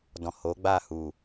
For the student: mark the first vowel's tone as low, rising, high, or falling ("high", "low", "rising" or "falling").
low